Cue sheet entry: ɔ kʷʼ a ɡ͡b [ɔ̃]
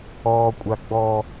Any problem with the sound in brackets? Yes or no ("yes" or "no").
yes